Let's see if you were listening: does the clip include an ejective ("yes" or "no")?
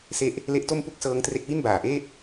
no